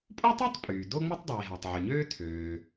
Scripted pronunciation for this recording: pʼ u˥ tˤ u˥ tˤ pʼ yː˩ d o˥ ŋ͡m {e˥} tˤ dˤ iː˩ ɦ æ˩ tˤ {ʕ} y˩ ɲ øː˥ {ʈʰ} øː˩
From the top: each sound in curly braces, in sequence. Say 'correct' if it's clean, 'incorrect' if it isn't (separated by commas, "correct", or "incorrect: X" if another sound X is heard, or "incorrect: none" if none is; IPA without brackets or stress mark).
correct, correct, incorrect: tʰ